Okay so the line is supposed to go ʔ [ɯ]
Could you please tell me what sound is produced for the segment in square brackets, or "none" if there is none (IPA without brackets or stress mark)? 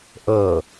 ɤ